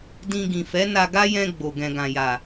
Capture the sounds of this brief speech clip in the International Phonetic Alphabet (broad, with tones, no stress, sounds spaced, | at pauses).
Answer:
d ĩ˧ ɡ ĩ˨ f ɛ˨˦ n a˧ ɡ a˦ j ɛ̃˧ ɡ͡b o˨ ɡ ɛ̃˨ ɡ ã˨ j a˨